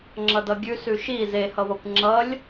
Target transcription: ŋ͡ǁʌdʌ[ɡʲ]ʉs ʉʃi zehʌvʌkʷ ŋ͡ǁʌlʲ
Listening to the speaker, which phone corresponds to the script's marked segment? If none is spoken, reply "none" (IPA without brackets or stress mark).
ɡʲ